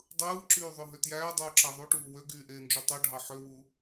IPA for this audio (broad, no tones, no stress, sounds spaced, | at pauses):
dˤ ɯː ǁ yː ðˤ ø ɦ ø t j æː dˤ uː ǁ æ ðˤ u ʈ uː w ø ɡ yː ʔ eː n d͡ʒ o tˤ o ɖʱ ɑ ħ ø w u